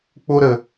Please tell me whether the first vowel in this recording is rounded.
yes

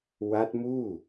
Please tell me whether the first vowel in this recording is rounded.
no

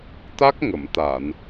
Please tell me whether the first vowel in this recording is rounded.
no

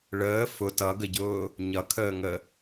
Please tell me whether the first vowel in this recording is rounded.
no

